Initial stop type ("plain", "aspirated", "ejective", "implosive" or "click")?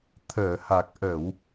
aspirated